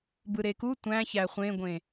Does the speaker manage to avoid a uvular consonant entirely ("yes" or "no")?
no